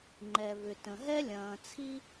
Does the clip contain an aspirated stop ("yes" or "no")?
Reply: yes